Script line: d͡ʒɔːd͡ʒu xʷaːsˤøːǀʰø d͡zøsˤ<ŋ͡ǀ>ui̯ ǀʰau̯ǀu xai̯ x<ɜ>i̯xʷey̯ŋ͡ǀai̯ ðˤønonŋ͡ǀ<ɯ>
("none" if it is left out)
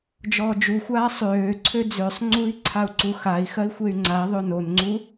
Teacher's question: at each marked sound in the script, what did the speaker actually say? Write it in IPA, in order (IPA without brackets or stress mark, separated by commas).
ŋ͡ǀ, ɜ, u